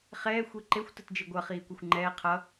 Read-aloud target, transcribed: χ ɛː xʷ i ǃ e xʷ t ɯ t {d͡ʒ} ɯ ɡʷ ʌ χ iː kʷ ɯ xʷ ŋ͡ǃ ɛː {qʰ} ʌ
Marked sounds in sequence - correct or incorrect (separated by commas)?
correct, correct